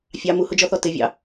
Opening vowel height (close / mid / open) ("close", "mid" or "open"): open